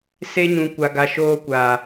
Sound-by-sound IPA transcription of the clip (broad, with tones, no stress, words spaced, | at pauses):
se˦ɲũ˨kʷa˨ɡa˨ ʃoː˦kʷaː˨